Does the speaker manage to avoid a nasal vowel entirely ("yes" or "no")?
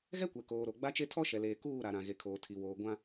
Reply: no